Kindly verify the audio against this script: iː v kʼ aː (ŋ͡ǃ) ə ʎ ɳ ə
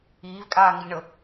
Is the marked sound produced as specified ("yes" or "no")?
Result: no